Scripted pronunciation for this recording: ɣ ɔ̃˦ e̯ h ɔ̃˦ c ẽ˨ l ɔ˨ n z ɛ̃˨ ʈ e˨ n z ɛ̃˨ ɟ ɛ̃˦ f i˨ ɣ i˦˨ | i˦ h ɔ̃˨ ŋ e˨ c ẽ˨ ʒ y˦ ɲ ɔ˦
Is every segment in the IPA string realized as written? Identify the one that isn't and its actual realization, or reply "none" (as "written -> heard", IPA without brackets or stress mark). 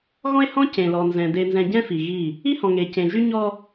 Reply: ʈ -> d